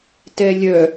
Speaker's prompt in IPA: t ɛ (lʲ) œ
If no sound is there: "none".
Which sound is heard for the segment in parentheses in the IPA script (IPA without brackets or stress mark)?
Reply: lʲ